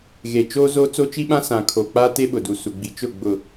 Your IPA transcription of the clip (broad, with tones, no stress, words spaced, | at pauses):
ɣe˨t͡ʃoː˦zo˦ t͡so˦t͡ʃi˦ɓã˦ sã˨kʰo˨k͡pa˦ te˦ɓʊ˨du˨su˨ ɡ͡bi˨t͡ʃʊ˦˨ ɡ͡bʊ˨